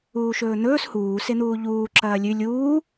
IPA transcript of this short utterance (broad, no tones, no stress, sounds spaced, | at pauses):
uː ʃ ɵː n̪ ɵː s h uː s e n̪ uː ʎ uː ǁ ɐː lʲ ʉ lʲ uː